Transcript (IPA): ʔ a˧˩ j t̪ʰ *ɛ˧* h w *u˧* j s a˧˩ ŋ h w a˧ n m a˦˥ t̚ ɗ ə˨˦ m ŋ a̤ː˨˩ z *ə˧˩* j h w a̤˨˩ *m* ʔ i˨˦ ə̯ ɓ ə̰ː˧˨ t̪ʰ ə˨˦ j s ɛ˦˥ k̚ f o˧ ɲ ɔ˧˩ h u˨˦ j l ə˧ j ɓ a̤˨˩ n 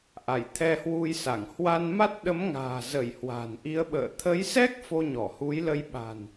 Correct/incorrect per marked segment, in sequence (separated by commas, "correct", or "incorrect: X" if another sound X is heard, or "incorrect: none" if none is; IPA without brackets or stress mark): correct, correct, correct, incorrect: n